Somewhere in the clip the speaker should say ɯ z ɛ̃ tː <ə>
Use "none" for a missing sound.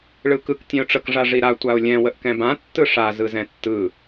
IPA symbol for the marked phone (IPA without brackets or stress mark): ɯ